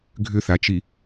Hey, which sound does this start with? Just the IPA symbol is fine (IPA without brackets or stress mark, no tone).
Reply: ɡʱ